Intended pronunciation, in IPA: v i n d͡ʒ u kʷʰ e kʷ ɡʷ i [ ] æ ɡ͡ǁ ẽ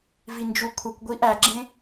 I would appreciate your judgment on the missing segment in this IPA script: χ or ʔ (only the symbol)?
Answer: ʔ